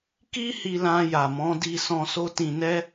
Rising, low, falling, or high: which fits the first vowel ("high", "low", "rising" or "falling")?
high